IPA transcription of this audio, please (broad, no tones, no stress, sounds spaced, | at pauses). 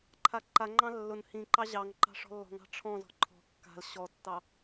ǃʰ a ǃ a ŋ͡ǃ ɑ̃ lː ʊ n h ĩ ǃ ɑ ʑ ɑ ŋ ǃ ɑ̤ ʂ ɔ̤ lː ɔ̤ ŋ ɑ̤ ʈ͡ʂʰ ɔ̃ z ɔ̤ ǃʰ ɔ̤ kː a̤ l ɕ ɔ tː ɑ